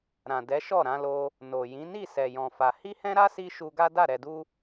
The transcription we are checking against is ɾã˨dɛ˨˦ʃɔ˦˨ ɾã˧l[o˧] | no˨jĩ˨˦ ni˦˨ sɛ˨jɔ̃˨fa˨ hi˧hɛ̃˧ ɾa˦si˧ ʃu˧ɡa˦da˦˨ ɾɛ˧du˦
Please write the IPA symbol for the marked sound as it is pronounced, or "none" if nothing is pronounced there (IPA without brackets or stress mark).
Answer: o˧